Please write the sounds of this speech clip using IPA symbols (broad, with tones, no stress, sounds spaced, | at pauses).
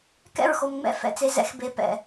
k ɛ̰˦˨ ɹ x o˨ m ŋ͡m ɛ̰˦ f ɛ̰˨ t͡s e˨ z ɛ̰˦ x b e˨ p ɛ̰˨